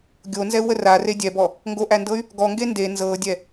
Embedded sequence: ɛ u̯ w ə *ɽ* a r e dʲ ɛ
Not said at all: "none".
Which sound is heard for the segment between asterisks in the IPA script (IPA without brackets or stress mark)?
r